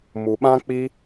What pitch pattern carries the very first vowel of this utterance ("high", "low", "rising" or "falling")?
low